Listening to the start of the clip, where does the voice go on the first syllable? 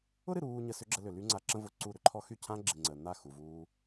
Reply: high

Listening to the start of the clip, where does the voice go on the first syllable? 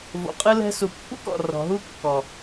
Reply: low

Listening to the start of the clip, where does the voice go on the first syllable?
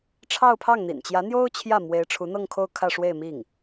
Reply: falling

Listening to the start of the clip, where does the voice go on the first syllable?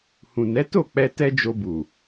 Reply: low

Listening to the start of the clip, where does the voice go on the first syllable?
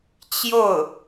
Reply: falling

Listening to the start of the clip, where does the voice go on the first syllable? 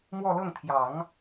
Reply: falling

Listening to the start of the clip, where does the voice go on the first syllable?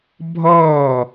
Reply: falling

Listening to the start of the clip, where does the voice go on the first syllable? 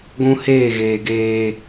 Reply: high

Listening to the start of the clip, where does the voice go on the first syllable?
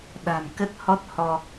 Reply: low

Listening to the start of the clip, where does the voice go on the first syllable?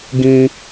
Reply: high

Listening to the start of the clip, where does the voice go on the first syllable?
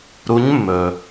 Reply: rising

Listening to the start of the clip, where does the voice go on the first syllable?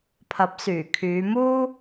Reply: rising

